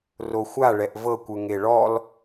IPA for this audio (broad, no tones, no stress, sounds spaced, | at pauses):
r o xʷ a ɭ ɛ ʔ v ɤ kʷ ɯ ŋ e ɭ ɔ l